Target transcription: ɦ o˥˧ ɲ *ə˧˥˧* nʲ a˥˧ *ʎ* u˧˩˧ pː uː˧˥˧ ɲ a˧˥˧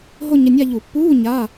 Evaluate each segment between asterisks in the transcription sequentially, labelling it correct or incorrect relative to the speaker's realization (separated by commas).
correct, correct